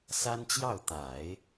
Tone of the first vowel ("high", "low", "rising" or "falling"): high